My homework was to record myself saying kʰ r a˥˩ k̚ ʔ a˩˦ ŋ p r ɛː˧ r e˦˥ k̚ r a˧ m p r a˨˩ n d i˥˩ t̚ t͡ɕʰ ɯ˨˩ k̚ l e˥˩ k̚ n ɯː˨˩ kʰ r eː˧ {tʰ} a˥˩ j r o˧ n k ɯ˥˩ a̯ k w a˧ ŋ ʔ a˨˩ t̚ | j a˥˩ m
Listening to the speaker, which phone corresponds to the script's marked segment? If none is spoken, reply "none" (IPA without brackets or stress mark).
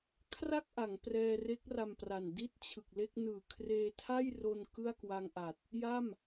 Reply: tʰ